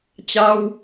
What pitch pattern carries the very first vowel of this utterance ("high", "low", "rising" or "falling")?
high